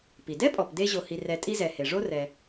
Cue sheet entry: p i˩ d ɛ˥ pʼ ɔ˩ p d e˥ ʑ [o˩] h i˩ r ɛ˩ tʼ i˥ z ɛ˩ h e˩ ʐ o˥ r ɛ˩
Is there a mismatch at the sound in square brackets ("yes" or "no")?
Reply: no